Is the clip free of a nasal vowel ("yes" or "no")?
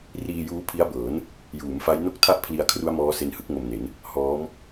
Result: yes